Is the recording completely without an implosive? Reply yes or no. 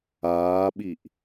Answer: no